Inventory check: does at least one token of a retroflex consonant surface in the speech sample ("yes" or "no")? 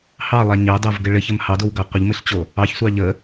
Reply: yes